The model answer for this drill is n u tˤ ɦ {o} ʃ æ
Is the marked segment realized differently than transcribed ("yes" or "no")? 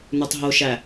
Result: no